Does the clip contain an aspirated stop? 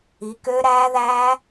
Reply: no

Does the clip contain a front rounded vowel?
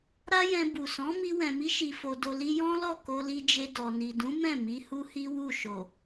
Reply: no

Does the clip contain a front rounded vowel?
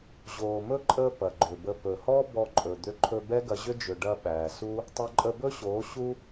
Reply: yes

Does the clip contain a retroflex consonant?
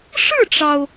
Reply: yes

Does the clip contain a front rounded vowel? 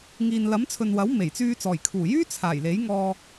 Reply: yes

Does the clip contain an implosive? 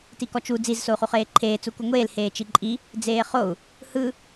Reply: no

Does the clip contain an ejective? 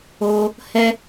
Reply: no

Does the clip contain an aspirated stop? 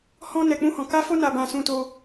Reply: no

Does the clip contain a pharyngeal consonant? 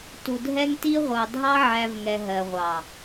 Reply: yes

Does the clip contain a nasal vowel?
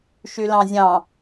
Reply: yes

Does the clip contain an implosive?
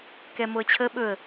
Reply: yes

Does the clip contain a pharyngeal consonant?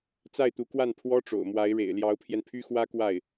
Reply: no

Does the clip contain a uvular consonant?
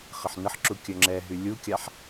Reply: yes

